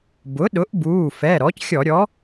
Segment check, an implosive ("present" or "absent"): present